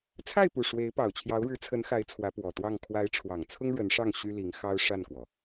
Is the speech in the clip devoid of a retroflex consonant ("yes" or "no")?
no